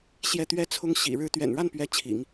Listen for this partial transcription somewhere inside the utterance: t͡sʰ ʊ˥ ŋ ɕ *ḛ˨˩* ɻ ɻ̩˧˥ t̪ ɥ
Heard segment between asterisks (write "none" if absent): ḭ˨˩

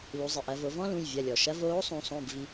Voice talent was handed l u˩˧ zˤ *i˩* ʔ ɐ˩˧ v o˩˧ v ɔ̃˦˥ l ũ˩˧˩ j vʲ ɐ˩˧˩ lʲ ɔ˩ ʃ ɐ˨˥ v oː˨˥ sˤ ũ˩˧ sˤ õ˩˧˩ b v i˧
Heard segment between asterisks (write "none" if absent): i˩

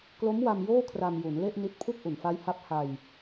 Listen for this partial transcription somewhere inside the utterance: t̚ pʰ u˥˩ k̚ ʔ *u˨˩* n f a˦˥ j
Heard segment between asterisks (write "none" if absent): u˨˩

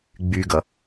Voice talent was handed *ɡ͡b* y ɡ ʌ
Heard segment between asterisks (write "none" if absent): ɡ͡b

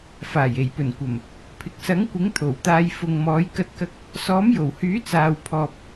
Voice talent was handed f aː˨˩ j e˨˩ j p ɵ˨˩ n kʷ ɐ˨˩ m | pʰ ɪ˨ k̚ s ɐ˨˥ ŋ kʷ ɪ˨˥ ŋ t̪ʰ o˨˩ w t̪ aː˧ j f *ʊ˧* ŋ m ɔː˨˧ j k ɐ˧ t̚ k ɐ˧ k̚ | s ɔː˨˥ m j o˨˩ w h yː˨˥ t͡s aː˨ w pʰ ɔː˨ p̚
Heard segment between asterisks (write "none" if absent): ʊ˨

